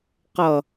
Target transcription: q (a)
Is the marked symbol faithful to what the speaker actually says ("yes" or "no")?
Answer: no